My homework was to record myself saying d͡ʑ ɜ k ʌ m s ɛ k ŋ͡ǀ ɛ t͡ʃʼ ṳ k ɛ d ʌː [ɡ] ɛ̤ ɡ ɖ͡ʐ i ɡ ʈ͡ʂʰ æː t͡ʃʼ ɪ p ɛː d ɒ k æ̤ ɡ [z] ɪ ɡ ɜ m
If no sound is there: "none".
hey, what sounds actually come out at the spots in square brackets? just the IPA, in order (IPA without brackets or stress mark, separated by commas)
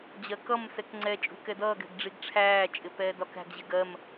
ɡ, ʑ